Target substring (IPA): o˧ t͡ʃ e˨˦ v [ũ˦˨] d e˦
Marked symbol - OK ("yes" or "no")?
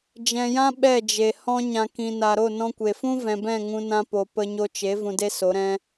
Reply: no